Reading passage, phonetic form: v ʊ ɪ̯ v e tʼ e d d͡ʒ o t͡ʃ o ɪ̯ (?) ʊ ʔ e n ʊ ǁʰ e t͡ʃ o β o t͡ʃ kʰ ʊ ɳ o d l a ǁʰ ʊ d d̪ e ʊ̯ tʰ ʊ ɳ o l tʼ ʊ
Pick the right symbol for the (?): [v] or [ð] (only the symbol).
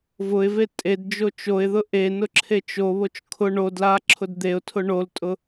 ð